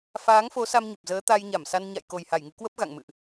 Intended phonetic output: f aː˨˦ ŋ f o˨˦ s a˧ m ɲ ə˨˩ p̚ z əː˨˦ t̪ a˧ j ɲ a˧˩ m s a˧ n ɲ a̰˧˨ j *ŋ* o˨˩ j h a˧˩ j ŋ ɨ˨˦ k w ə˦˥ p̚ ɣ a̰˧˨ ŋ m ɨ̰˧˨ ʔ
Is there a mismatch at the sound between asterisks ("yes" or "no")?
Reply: yes